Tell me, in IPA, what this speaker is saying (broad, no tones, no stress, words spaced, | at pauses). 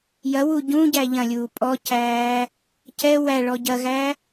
jɐwu ɟũɟæ ʎɐ̃lʲuː pʼɔcæː | cɛ wæ ɭɔɟɐɣæ